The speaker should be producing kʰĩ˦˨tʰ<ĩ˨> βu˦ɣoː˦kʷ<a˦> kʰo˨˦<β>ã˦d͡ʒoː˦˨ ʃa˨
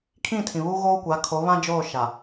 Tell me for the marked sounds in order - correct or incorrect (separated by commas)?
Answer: correct, incorrect, correct